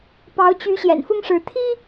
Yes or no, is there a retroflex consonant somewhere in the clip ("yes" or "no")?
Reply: yes